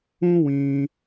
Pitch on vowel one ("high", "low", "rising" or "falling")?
high